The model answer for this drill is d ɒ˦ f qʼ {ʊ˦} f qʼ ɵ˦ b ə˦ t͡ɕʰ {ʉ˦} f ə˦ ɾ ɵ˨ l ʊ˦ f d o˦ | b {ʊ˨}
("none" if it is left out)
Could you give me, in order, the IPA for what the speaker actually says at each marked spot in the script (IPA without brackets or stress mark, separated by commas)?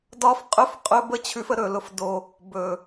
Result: ɵ˦, ʉ˦, ɵ˨